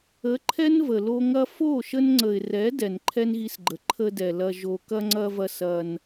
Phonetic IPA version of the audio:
ə˨˦ ǃʰɛ˦nvə˨lo˧ ŋɐ˧fo˦˨ʃə˧nŋ͡ǀə˨ɪ̯ rɛ˨˦ dɛ˨nǃʰɛ˦nɣi˧sɡ͡ǃə˨ ǃʰə˧dɛ˨ lɐ˧ʒo˧ kɐ˧ŋ͡ǀɐ˧vɐ˧ sɐ˧n

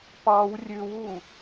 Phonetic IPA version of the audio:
pɑw rʲʉwu

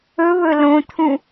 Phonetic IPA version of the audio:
ɵβɵ lõt̪ʰũ

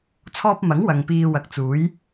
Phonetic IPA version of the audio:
t͡sʰɔː˥p̚ mɐ˨˥ŋ wɐ˨ŋpiː˧ wɐ˨k̚t͡suː˨˥j

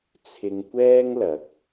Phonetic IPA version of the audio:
t͡sʰɪ˧ŋ kʷɛː˥ŋlɐ˨˥k̚

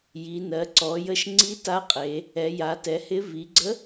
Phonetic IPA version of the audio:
ji˩˧nɜ˩˧ǀɔ˩˧jə˧˥ʃ ŋ͡ǀi˧˥ta˧˥qʼe˩˧ | ɛ˩˧ja˩˧tɛ˩˧hɪ˧˥ vi˩˧ɡ͡ǀə˧˥

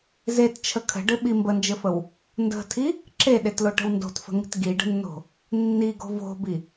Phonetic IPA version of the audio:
zett͡ʃʰə kʰə̤ɖɘɓi mbənd͡ʒɘfəw | ndə̤tʰi | ǁeɗetloʈə̤w ndo̤tfə̤ŋi̤t ɡiɖə̤nːo̤ | nːiɡo̤ vo̤bi

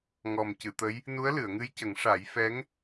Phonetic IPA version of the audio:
ŋɔ˨˩mcɨ˨˩˨t̪ə˧˥j | nu˧˥ə̯lɨ˨˩˨ə̯ŋɨ˧jcə˨˩˦ŋ ʂa˨˩˦jfɛ˧˥ŋ

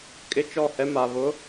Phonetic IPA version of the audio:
kʼɪ˦t͡ʃɔ˦˨hɛ˦ ma˨βʊ˨˦

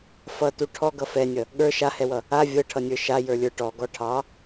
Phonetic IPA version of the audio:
fʌtu ʈʰɔ ɡʌfɛnʲʌ | ɠə˞ ʃahɛwʌ | a vʲɤʈʰʌnʲə˞ ʃajə˞lʲə˞ ʈɔɡɔ ʈʰɑ

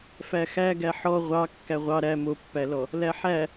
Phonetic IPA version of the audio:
fæxæɡæ ħɔ ʁʷɑ kːæʁʷɑ ɾæ mopːælɔ | læħæ

